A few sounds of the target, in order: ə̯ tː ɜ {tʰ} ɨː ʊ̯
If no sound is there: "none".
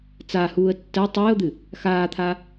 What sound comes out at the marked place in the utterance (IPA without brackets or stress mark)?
tˤ